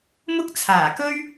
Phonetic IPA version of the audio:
m ʊ˥ k̚ t͡sʰ aː˨˩ k ɵ˥ ɥ

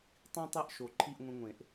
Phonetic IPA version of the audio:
tˤ ĩ˦ tˤ e˦ ʔ ʃ o˨˩ ǃʰ i˥˨ ʔ ŋʷ ẽ˦ ŋʷ ẽ˨˩˦ ʔ

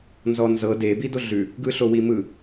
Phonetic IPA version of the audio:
n z ɔ n z ɤ d e b i d o ɮ ʉ | ɡ ɯ ɬ o w i m ɯ

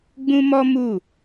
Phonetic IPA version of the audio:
ɡ͡b ũ˦ m ɔ˦ m u˦˨

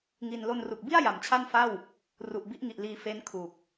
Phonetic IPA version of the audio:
ŋ i˧ n l o˧ n r u˨˩ k̚ b i˥˩ a̯ j a˨˩ m t͡ɕʰ a˥˩ n f a˥˩ w | r u˨˩ ʔ b i˦˥ ʔ ŋ i˨˩ ʔ l iː˧ f e˦˥ n kʰ u˨˩ k̚

